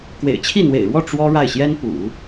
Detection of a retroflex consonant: present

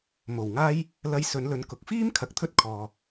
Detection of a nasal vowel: absent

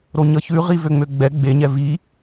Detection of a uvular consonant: present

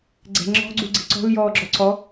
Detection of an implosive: absent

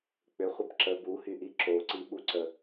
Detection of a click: present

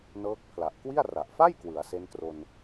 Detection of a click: absent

